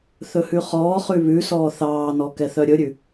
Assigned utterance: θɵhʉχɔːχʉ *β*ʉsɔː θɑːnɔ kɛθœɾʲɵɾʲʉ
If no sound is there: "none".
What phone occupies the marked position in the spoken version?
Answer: β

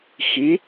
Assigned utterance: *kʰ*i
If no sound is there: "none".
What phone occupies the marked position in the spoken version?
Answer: x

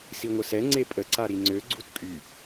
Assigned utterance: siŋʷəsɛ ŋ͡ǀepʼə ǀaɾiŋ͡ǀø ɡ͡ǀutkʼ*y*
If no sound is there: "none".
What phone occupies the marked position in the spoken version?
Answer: y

